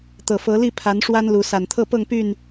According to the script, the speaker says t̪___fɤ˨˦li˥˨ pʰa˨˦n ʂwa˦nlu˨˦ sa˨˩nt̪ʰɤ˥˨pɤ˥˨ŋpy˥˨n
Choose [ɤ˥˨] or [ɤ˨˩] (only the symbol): ɤ˨˩